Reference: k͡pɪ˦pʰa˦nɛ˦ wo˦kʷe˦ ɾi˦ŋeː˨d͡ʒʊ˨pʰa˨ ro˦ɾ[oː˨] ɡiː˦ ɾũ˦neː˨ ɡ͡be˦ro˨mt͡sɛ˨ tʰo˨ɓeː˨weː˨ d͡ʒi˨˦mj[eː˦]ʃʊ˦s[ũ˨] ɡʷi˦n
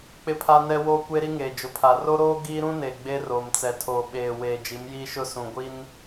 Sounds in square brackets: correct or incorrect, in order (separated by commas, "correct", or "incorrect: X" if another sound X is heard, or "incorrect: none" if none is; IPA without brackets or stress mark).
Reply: incorrect: oː˦, incorrect: iː˦, correct